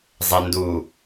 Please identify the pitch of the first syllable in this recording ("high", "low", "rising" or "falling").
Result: low